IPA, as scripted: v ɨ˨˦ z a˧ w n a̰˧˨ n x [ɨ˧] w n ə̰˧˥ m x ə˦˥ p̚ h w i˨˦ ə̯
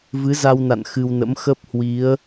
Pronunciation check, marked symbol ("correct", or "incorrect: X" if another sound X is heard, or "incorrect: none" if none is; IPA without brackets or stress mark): correct